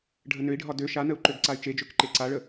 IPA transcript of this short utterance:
ɖʱənøi̯ɖʱɒ dø ʃanəu̯ ǃøɡǀay̯t͡ʃed͡ʒøk ǃeǀaɭə

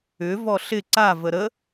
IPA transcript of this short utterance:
ʏ vɔɬɪ ǀa vəɾə

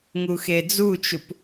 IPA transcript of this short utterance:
ŋuxed͡zut͡ʃup

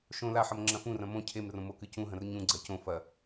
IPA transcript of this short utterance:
ʃõ laħɐm ŋ͡ǁɐ̃fũrɐ̃ mõ cʰemrõ mokɨ cũɦɐ̃r ɲũɡ͡ǀɐ cõ fɐ

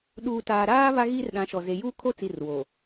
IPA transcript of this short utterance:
ɗuː˨taː˨ɾaː˦ βa˦ɣiː˦rɗã˨˦ʃɔ˨ ze˨juː˦kʰo˦ t͡si˦˨rwo˨

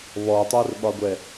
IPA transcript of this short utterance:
βɔtˤɛrɓɒɡʷɛ

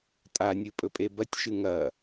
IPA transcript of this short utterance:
tʼanʲɨpʼɵpʼe bɐtʲʃɨ ŋɐ

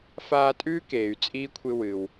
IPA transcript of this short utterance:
faː˦tʼʉː˥ keː˨y̯t͡sʼiː˥kʷʰɨ˦ wɨ˨w

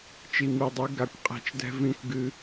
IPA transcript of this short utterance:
t͡ʃi˨mi˨dˤɨ˨˦ ɡa˨kʷqʼɛ̤˨˦t͡ʃdɛ̤˧ vĩ˦kʷɡɨ˦

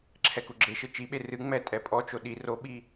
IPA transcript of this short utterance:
ǁʰɛkuɡ͡ǁeʃɘ t͡ʃiɓe rɨŋ͡mɛ tʼɛpʼɔt͡ʃo ɗi roɓi

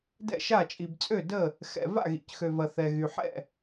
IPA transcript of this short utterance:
dɛ̰˥˨ʃa˥˨ t͡ʃʼi˨bt͡sʼø˥˨də˥˨ | xɛ̰˨ va̰˥˨ɣḭ˨cxø˨vɐ˨ θɛ˨ɣy˨ħɛ̰˥˨

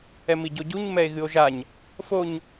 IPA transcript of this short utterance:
ɛmiɟoɟuɲ mɛe̯ɣɨo̯ʒaɲ | foɲ

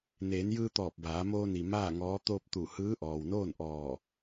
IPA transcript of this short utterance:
neː˩˧njɯː˧t̪ɔː˧˩p̚ baː˩˧moː˧ni˩ maː˥˨ ŋɔː˧˥ t̪oː˧p̚t̪u˧˩ hɯː˧˥ʔɔː˩wnoː˥˨nʔɔː˧˩

